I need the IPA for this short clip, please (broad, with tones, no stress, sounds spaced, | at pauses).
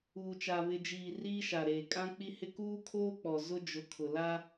uː˨ t͡ʃ a˨ β ɪ˨ d͡ʒ iː˨ r iː˦ ʃ a˨ ɾ eː˨ kʼ ã˦ k͡p i˦ h ɪ˦ k uː˦ kʰ oː˦ k͡p ɔ˨ z ʊ˦ d͡ʒ ʊ˨˦ kʰ ʊ˨ l a˦